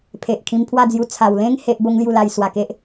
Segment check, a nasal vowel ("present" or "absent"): present